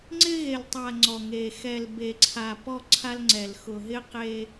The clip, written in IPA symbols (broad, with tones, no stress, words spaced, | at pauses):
ŋ͡ǀɪ˦ɣe˨ltˤa˨ ŋ͡ǀɔ˨ŋe˨ xɛ˨lbe˨ǀʰa˨ pɔ˦ǀʰa˦lŋ͡ǀɛ˨l xʊ˨ɦɪ˦qe˦